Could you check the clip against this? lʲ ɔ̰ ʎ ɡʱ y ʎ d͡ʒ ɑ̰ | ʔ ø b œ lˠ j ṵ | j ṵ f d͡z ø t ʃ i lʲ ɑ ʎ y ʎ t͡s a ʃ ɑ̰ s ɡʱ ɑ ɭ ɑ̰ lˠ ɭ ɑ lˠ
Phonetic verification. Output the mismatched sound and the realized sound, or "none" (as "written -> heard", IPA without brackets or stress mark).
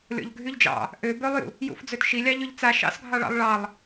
none